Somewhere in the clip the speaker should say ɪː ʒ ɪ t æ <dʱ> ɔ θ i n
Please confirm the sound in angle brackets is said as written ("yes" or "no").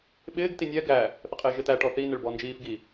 no